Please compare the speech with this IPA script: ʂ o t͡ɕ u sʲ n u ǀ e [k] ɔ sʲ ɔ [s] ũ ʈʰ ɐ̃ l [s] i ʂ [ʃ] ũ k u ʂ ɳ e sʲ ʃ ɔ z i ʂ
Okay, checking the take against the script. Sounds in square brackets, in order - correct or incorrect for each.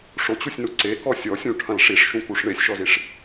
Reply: correct, incorrect: sʲ, incorrect: ʂ, correct

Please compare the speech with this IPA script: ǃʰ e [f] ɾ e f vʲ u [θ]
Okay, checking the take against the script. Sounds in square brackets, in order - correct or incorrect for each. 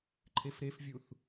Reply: correct, correct

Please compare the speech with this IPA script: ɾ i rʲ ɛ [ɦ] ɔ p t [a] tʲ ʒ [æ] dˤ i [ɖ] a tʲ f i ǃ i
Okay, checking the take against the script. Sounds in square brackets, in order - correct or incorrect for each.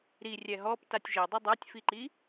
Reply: correct, correct, correct, incorrect: dˤ

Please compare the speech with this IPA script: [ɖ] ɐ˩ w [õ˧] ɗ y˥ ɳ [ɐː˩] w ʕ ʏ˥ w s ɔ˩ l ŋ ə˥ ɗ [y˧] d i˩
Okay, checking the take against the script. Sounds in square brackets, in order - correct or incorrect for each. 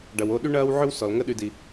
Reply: correct, incorrect: o˧, incorrect: ɐː˥, correct

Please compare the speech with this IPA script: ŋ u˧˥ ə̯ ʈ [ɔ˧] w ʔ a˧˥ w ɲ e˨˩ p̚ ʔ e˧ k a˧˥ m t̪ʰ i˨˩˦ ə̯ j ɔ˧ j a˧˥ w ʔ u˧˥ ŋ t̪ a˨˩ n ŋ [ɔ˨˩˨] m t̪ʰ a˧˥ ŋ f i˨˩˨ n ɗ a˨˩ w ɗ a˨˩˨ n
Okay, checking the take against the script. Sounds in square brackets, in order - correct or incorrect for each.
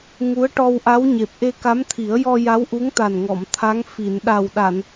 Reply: correct, correct

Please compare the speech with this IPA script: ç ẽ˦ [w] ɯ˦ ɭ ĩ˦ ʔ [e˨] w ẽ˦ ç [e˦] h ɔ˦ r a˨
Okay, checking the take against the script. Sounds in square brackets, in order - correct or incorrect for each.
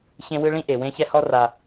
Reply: correct, correct, incorrect: ɛ˦

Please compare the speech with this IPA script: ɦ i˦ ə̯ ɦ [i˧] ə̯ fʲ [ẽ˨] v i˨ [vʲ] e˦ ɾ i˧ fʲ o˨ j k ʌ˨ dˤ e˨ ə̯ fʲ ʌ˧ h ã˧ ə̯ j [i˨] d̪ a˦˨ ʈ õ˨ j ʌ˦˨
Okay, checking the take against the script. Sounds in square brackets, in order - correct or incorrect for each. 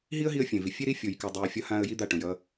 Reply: correct, incorrect: ɛ̃˨, incorrect: fʲ, incorrect: i˦

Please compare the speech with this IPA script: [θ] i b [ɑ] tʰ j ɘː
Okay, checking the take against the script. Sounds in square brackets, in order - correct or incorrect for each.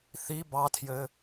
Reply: correct, correct

